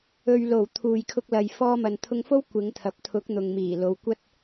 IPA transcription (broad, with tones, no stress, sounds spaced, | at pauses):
ɵ˨ ɥ l o˨˩ w t̪ʰ uː˨ j kʰ ʊ˧ k̚ l ɐ˨ j f ɔː˧ m ɐ˨ n t̪ʰ ʊ˧ ŋ f o˥ w kʷ ɪ˨˧ ŋ t̪ʰ ɐ˨ p̚ t̪ʰ ʊ˨˥ k̚ n̪ ʊ˨ ŋ m iː˨˩ l o˨˧ w kʷ ɐ˥ t̚